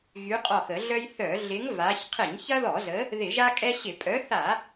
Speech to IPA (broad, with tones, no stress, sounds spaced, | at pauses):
ɣ y˨˦ qʼ ɔ˧˩ x ə˧˩˧ ɮ œ˦ j θ œ˧˩˧ ɮ ɪ˨˦ ŋ v a˨˦ ç qʰ ɪ˧˩˧ ɲ ç ɐ˦ ð ɔ˧˩˧ z ə˨˦ | ð ɪ˧˩˧ ʒ a˦ kʼ ɛ˦ ɕ ɪ˧˩˧ pʼ œ˨˦ θ a˧˩˧